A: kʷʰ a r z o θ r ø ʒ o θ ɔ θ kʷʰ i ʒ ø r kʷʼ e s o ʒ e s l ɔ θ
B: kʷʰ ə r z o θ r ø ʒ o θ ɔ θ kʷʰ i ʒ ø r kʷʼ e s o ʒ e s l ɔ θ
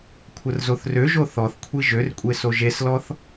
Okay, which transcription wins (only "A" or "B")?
B